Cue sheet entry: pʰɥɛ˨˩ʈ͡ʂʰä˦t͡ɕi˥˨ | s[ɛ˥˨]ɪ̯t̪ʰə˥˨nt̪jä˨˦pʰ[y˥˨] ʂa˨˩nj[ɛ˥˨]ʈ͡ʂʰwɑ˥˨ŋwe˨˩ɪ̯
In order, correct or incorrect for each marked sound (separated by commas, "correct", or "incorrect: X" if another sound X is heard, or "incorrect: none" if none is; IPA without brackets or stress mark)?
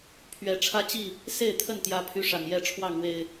incorrect: e˥˨, incorrect: y˨˦, correct